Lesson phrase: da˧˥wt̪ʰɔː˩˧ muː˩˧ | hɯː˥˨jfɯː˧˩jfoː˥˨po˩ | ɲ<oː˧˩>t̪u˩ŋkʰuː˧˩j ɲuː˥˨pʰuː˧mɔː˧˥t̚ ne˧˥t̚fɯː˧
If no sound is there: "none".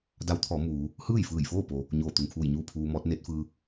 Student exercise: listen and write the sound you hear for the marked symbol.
oː˧˩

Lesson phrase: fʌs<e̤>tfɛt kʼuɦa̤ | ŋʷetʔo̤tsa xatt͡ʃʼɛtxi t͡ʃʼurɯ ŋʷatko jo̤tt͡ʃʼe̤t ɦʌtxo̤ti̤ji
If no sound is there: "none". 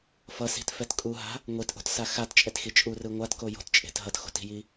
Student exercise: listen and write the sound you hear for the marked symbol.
i̤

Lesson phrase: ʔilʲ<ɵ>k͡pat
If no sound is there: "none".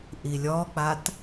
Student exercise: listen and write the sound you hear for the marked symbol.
ɔ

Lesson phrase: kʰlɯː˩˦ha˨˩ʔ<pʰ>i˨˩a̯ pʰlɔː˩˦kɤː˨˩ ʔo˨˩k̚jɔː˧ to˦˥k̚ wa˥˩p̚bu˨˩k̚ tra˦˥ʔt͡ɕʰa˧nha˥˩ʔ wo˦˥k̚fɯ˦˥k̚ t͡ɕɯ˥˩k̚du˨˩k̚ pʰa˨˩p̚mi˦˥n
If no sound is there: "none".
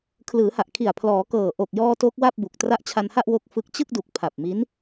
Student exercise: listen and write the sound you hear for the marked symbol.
kʰ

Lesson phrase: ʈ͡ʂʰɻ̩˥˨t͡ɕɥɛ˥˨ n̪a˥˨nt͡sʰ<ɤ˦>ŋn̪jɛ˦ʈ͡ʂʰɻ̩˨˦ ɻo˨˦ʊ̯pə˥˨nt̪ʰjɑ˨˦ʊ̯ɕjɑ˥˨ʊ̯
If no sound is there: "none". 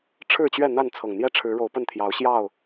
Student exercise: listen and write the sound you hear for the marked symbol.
ɤ˨˩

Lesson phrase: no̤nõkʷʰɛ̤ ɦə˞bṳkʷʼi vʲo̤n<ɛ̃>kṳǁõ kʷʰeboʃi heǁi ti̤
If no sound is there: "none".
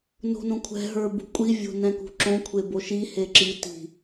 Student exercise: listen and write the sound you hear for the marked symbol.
ɛ̃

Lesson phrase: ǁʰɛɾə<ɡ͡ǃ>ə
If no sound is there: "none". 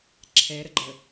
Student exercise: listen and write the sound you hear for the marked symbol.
ɡ͡ǃ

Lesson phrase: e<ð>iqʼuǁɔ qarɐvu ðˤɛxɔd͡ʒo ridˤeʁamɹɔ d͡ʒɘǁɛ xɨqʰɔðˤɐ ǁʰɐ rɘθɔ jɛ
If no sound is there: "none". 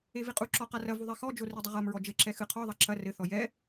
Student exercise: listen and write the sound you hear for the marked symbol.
v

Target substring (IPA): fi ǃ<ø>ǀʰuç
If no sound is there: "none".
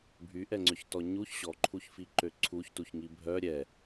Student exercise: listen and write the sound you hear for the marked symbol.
ø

